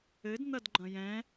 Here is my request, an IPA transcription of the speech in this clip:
ɘ d n̪ ɐ d ɡ͡ǃ ɐ̃ j ɛ̃

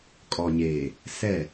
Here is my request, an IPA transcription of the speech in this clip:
kʼ ɔ˨ ɲ eː˨ | s ɛ˦˨

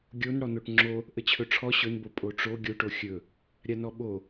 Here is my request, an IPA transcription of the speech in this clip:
ɡʲ o n ɽ ɔ n o ʈ ŋ͡ǁ o | ʔ ə t͡ɕʰ ɵ ʈ͡ʂʰ ɔ ɕ ɵ n b o pʼ o ʈ͡ʂ o ɡʲ o ʈ o xʲ ɵ | ɾʲ a n ɔ ɓ o

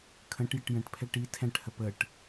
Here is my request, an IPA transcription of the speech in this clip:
kʰ ə̃ ʈ j ɪ ʈ j ə̃ ʈ pʰ ɛ ʈ i tʰ ɛ̃ ʈ h ə p ə ʈ

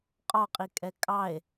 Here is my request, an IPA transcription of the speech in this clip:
qʼ ɒ qʼ i kʼ ɛ kʼ ɑ e̯

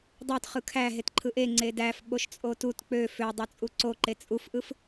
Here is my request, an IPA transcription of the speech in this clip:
dˤ ø t χ ɯ kʰ æ ɦ e t ǃʰ ɯ ʔ e ŋ͡ǀ e d æ f ɓ o ʃ t͡sʼ o t u t k͡p ø f ø dˤ o t͡sʼ u ǀ o ǃ e t͡sʼ u f ʔ ɯ f

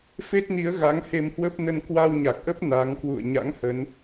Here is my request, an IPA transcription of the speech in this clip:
f e˦˥ t̚ n i˨˦ ə̯ ɣ a˨˦ ŋ h e˧ m h w ə˦˥ p̚ n ə˧ n k w a˧ w ɲ a˨˩ k̚ ʔ ə˦˥ p̚ n a˨˦ ŋ k w ṵ˧˨ ə̯ ɲ a̰˧˥ ŋ h ə˨˦ n

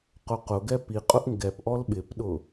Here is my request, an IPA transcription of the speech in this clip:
q ʊ q ʊ ɡ ɛ p i qʼ ʊ ʔ ŋ ɡ ɛ p ʔ ɔ l ɓ ɪ p ɗ ʊ

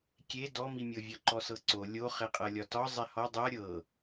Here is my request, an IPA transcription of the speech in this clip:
kʲ e d ɔ m i mʲ ɤ vʲ ɒ ǃ ɔ s ɤ ǀ o lʲ o χ e qʼ ɤ lʲ ɒ t ɒ zˤ e h ɔ dˤ ɤ ɾʲ ɤ

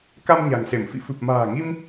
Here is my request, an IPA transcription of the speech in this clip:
k a˧ m ɲ a̤˨˩ ŋ s e˧˩ m f ḭ˧˨ f ɨ˨˩ p̚ m a̤ː˨˩ ŋ i˧ m

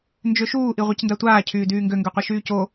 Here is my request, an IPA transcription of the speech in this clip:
n d͡ʒ ø ʃ uː ʔ i ʁʷ i c n d a tʷ aː cʰ yː d yː ŋ ɡ ø ŋ ɡ ø qʷ i ʃ yː c o

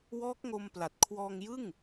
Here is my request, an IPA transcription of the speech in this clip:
w ɔː˦˥ k̚ ŋ o˧ m p l a˨˩ t̚ kʰ w ɔː˧ ŋ j ɯ˥˩ ŋ

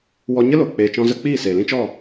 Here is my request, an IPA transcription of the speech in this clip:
w ɔ˧ ɲ ə˦ l o˨ k͡p eː˨ t͡ʃ ɔ̃˧ z ə˧ k͡p iː˦˨ s eː˨ l ĩ˦ t͡ʃ ɔ˦˨

